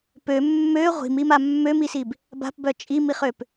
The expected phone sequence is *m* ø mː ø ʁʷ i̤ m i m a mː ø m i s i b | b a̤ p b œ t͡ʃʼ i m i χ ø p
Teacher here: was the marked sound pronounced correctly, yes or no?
no